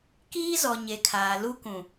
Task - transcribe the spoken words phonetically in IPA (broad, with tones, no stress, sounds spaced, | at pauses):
k iː˦ z ɔ˨ ɲ e˨ kʰ aː˨ l u˦ k ũ˨